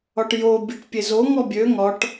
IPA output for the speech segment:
ɒ ʈ j o bʲ e ʈ pʲ e z o ŋ ɔ bʲ ø ŋ ɒ ʈ

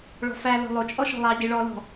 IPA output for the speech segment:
ɭ ɔ̤ f æ l ɔ̤ lˠ o t͡ʃʼ ɔ ʃ ɔ̤ lˠ ɑ ɟ i ɭ ɔ l ɔ̤

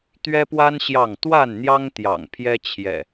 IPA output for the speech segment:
t̪ ɥ ɛ˦ p w a˦ n ɕ j ɑ˥˨ ŋ t̪ w a˥˨ n n̪ j ɑ˦ ŋ t̪ j ɑ̰˨˩ ŋ pʰ j ɛ˦ t͡ɕʰ j ɛ̰˨˩

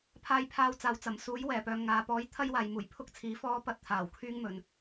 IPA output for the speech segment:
pʰ aː˧ j pʰ aː˧ w t͡s aː˨ w t͡s ɐ˨˩ m s uː˨˥ j w ɛː˨˩ p œː˨ ŋ aː˨ p ɔː˨˥ j t̪ʰ ɐ˥ j w aː˨ j m uː˨˩ j pʰ ʊ˥ k̚ t͡sʰ iː˨˥ f ɔː˥ p ɐ˥ t̚ t̪ʰ aː˨˩ w kʰ yː˥ ŋ m ɵ˨ n

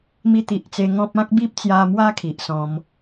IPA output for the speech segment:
m i˧ t̪ i˨ ʔ t͡s e˧ ŋ ɔ̃˦ p̚ ã˦ k̚ b i˦ p̚ t͡s j a˧ m w a˦ kʰ i˨ ʔ s ɔ̃˧ m

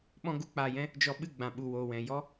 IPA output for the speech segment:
ɓ ɔ̃˦ ɡ u˦ k͡p aː˧ j ɛ̃˦ | d͡ʒ ɔ˧ ɓ ɨ˦˨ ɡ͡b ã˨ ɓ u˨ w oː˨ w ɛ̃˨ j ɔ˦

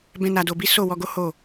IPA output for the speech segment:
b ɛ̃˦ n a˧ d o˧ b i˦ s o˦˨ w ɔ˧ ɡ o˦ h o˦˨

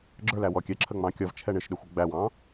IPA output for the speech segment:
ɡ͡ǁ ə˞ l æ w ɔ kʲ ɛ ǁʰ ə ŋ͡m ɑ̃ kʲ ʌ v t͡ʃʰ ɛ ɳ ɪ ʃ ɗ ə xʷ ə ɡ͡b æ w ɑ̃

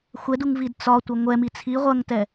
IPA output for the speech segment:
xʷ ɛ d u ŋ v i d t͡s ɒ tʷ ɐ ŋʷ ɛ m i t͡sʰ i ʁʷ ɐ ŋ t ɛ

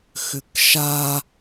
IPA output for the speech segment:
x ʏ k ʃ a

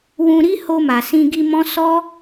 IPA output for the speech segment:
w ũ˧ ɾ i˦ h o˧ m a˨ s ĩ˧ ɡ i˧ m ɔ̃˦ s ɔ˦

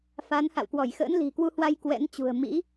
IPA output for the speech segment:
f a˨˦ n h a̰˧˨ w k w ɔ˧˩ j x ə̰ː˧˥ n l i̤˨˩ k w u˧ h w a˧ j k w ɛ̰˧˥ n t͡ɕ ṳ˨˩ ə̯ m ḭ˧˥

